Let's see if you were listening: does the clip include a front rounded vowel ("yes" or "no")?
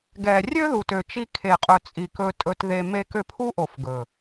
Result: yes